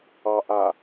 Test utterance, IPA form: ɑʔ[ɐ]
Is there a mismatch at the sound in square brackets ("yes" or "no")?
yes